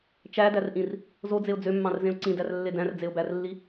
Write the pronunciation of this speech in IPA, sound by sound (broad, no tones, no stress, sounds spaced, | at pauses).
t͡ʃ æ d æ r ʔ ĩ r | z o d͡z e ʊ̯ d͡z ø mː ɑ̃ r z ẽ ʊ̯ ǀ ĩ d æ r lː e d æ̃ r d͡z e ʊ̯ b æ r lː i